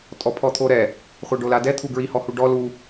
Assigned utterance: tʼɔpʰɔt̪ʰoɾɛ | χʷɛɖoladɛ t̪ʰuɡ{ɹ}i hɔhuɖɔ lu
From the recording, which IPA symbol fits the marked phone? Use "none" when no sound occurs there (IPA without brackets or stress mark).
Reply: ɹ